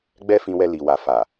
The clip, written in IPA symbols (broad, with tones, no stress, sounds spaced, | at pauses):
ɡ͡b ɛ˦ f ĩ˧ w ɛ˧ l i˨ w a˨ f a˨